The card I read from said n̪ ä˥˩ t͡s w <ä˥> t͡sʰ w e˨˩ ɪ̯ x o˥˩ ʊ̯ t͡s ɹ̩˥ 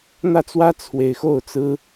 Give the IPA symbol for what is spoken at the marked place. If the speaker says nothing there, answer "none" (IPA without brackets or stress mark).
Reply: ä˥